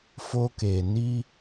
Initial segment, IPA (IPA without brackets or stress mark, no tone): f